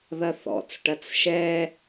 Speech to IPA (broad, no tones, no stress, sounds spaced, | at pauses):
ð ɐ θ ɔ̰ t͡s ʈ ɐ t͡s ʃ ɛ